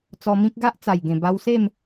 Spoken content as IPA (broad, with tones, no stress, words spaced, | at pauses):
t͡sɔ˧mĩ˦k̚ɡa˦ʔ t͡sa˨˩jɡẽ˨˩ba˧wse˥˧m